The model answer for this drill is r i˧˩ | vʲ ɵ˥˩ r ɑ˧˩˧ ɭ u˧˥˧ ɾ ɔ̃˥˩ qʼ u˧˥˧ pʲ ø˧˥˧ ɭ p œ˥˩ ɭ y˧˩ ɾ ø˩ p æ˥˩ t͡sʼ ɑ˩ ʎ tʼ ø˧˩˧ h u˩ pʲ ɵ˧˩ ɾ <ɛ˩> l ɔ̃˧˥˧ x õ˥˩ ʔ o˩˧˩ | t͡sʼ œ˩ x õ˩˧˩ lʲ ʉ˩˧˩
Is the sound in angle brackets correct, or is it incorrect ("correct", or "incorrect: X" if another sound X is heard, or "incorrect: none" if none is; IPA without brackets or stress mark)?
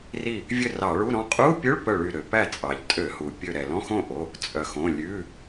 correct